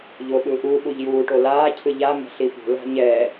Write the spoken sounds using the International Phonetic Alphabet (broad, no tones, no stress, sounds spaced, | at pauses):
ʎ o ɓ ɯ ʔ u ɓ u ʎ j uː ʈ o l aː cʰ ɯ ʎ a m ɛ̤ ɬ i p ṳ l a̤ ɲ ɛ